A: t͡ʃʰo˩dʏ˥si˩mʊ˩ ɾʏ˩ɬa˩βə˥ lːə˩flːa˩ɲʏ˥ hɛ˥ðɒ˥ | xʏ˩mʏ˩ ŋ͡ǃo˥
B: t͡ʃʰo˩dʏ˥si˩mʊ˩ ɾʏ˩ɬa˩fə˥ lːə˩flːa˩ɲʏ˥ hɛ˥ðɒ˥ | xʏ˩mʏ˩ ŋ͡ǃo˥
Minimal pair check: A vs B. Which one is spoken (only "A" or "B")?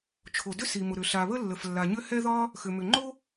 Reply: A